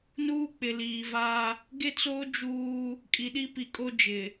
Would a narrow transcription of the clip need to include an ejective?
yes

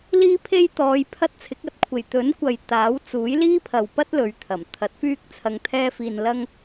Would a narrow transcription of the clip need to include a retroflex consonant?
no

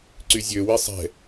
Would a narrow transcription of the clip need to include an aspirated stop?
no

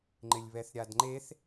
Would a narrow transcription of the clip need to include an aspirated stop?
no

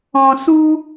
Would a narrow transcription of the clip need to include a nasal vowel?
yes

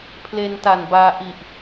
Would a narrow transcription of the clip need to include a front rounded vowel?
no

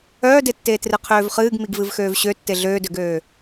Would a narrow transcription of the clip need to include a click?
no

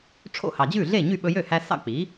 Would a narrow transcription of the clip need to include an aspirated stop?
yes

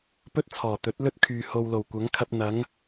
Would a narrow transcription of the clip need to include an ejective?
no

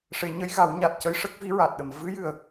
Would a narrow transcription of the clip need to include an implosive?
yes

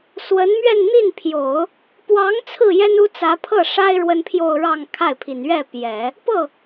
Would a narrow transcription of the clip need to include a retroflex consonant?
yes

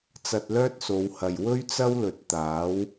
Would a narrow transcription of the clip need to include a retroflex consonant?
no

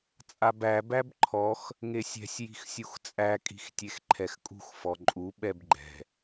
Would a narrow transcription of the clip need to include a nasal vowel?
no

